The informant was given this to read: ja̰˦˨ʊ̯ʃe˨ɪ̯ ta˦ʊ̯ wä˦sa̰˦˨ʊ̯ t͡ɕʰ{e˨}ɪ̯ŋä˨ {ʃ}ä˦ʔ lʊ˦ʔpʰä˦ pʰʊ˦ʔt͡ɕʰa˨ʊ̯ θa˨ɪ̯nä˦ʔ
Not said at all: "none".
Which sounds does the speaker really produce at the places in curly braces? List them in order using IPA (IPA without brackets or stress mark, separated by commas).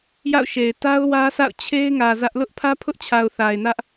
e˦, z